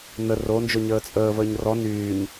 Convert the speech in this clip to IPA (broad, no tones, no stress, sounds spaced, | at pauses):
n ə r o n d͡ʒ o ɲ əː t͡sʼ əː v əː ɲ r ɔ n yː ɲ